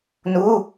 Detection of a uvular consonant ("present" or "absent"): absent